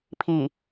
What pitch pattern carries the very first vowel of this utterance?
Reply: low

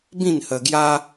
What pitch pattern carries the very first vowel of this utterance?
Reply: falling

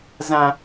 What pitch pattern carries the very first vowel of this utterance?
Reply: high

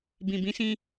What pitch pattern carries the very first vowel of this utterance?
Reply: low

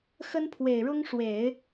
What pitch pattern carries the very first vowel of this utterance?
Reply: high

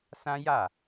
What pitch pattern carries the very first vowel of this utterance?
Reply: high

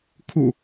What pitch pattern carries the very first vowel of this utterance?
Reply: low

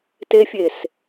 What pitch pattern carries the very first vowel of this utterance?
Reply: high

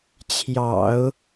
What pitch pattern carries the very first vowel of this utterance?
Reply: low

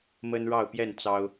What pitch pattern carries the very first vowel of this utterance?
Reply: high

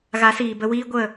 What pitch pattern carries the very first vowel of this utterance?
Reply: rising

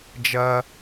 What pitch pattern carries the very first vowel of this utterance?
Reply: low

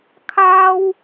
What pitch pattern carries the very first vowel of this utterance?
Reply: high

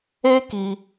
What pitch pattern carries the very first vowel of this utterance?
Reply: high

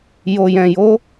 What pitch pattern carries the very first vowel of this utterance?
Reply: low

